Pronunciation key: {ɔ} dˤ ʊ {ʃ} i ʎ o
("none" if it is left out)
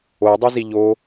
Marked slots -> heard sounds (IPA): o, z

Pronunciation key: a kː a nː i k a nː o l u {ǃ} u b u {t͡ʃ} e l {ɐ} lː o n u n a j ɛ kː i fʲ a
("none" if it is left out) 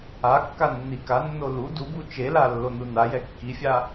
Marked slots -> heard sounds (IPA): d, t͡ʃ, a

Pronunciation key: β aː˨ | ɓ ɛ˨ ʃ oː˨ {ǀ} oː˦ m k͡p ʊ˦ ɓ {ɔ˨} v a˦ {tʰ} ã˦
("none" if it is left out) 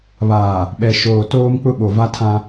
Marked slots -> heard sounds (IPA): t, o˨, tʰ

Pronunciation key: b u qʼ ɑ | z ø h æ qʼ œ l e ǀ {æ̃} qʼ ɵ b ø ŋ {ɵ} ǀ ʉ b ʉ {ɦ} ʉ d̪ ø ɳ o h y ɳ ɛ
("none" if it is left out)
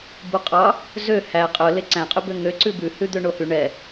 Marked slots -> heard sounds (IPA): æ̃, ø, h

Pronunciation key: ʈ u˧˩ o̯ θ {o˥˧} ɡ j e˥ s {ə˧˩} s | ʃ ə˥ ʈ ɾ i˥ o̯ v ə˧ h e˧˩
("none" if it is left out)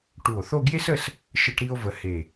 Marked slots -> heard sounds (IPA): o˥˧, ə˥˧

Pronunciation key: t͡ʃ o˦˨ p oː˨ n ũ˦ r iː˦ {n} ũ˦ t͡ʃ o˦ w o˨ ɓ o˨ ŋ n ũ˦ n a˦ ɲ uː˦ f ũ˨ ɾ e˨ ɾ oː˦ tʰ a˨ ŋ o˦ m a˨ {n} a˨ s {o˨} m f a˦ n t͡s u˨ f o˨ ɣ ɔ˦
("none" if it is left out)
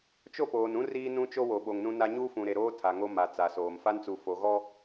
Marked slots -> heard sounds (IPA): n, t͡s, oː˨

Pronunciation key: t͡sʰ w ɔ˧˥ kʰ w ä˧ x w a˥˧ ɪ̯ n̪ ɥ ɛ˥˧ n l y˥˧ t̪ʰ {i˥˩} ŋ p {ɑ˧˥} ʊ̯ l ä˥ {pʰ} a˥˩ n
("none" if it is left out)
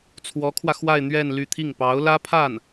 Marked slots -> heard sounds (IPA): i˥˩, ɑ˧˥, pʰ

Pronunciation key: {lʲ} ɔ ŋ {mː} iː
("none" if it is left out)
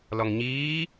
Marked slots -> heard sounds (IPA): l, ɲ

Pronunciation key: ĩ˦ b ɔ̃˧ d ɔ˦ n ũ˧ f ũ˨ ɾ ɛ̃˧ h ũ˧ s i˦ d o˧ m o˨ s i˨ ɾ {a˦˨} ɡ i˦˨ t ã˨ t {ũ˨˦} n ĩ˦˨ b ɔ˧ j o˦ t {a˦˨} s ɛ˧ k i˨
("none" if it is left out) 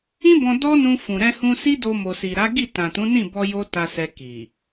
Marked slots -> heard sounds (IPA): a˨˦, ũ˨˦, a˧

